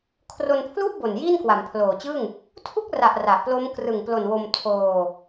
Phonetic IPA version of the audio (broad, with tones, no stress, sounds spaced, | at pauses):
kʰ r o˧ n pʰ l u˥˩ ʔ b o˨˩ n j iː˥˩ n k w a˩˦ m pʰ l oː˨˩ t͡ɕ ɯ˥˩ ŋ | tʰ u˥˩ k̚ r a˨˩ ʔ r a˨˩ ʔ p l o˦˥ m k r ɯ˨˩ ŋ p l o˨˩ n w o˧ m tʰ oː˧